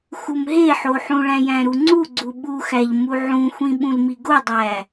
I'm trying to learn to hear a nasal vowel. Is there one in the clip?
yes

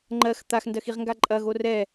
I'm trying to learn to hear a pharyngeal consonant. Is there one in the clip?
no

